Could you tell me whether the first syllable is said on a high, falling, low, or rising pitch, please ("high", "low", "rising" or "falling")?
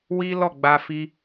high